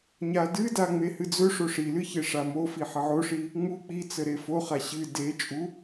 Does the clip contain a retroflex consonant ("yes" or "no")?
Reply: yes